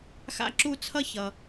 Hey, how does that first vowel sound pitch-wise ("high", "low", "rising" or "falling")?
high